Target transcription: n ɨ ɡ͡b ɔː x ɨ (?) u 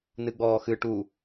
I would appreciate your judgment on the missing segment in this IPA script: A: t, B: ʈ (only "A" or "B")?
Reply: B